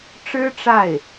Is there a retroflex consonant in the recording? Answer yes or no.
yes